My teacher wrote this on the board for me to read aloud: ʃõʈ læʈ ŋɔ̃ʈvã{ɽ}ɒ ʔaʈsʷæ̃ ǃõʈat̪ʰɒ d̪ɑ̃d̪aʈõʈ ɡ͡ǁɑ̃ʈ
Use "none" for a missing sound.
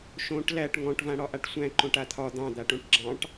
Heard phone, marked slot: ɽ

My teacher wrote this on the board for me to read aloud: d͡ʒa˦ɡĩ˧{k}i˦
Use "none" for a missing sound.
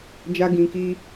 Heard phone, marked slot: k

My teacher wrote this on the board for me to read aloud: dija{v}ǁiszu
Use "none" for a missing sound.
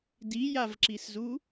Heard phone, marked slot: v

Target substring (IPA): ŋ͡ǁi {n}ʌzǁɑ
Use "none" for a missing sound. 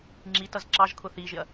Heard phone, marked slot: t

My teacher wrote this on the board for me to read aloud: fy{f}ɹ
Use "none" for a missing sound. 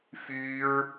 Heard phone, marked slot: none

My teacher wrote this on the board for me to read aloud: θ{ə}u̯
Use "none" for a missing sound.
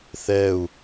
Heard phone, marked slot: ɛ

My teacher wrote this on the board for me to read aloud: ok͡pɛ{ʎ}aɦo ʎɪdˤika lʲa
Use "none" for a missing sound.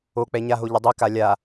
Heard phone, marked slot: ɲ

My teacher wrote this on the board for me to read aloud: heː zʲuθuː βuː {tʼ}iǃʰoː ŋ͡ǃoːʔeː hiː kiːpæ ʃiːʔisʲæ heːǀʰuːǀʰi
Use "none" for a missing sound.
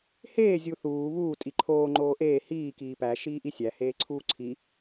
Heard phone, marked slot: tʼ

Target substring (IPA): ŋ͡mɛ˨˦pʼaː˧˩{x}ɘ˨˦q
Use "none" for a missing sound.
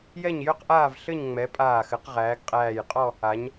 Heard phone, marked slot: x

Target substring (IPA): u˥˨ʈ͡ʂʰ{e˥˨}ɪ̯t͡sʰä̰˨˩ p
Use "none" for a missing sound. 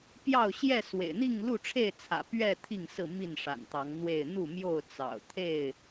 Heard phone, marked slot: e˥˨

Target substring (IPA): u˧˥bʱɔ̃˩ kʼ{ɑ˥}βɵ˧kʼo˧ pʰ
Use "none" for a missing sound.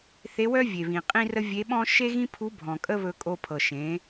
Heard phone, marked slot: ə˥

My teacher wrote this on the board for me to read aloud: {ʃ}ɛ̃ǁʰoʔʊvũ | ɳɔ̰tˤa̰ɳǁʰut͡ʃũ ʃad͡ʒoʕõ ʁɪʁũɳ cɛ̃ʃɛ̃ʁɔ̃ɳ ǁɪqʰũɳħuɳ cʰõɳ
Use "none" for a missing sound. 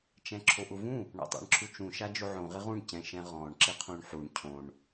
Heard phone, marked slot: t͡ʃ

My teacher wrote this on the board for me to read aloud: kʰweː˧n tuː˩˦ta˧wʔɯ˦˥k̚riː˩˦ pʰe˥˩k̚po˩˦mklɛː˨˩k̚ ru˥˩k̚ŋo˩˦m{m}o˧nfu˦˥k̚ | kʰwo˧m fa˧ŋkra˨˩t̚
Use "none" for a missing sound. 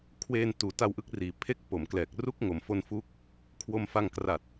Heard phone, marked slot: f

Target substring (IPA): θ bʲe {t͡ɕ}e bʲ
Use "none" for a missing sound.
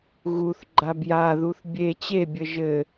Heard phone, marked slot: t͡ɕ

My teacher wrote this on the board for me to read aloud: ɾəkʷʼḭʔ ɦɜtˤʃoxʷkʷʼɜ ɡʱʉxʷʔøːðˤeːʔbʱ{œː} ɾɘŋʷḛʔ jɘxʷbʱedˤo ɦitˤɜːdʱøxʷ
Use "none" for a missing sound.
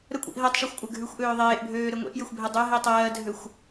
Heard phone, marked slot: øː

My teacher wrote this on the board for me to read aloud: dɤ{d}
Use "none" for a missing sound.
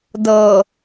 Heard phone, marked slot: none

